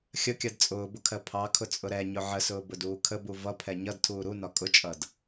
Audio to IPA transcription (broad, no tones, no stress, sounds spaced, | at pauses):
xʲ ə kʲ ɜ d t͡sʼ ʊː b ʊ kʰ ɜ pʰ ɑ kʰ ʊ t͡sʼ ʊ ɾ ɛ ɲ ʊ ʕ ə s ʊː b ʊ d uː kʰ ə b u v ʌ pʰ ɛ ɲ ʌ d tʰ uː ɾ u n ɒ kʼ ʊ t͡ʃʼ ʌ d